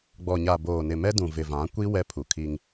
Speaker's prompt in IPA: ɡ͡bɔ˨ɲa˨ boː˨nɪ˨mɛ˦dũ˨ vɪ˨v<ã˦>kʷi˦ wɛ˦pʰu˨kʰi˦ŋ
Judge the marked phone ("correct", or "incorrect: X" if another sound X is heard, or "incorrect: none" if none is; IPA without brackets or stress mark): incorrect: ã˨˦